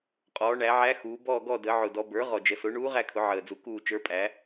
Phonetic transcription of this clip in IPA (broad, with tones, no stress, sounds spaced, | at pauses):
qʼ ɔː˩˧ ɳ æ˩˧ ʕ æ˧˥ x uː˩˧ b ɔː˦˨ ɡ ɔ˦˨ d əː˩˧ ʕ ʊ˨˩ d ɔ˩˧ b ə˞˩˥ ʁ ɔ˨˩ d͡ʒ ə˩˧ s ʊ˩˥ ɳ uː˧˥ ʁ æ˦˨ kʰ ʊ˩˧ ʕ əː˨˩ d͡z u˩˥ k uː˦˨ t͡ʃ ə˞˧˥ pʼ æ˩˥